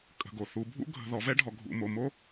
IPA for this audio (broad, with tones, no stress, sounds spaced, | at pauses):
kʼ ə̤˨ ɡ o˨ θ u˨ bʱ ṵ˦ ɡʱ ə̤˨ ð ɔ˨ v ɛ˦ ɖʱ ɔ˨ ɡʱ ṵ˨ m o˨ m o˦